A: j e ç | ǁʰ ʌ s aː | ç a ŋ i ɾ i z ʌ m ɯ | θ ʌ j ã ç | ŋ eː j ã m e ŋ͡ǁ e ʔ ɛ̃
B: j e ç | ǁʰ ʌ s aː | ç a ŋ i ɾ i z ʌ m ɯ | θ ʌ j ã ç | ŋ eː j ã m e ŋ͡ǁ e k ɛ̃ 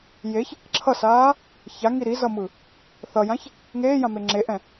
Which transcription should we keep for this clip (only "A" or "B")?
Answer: A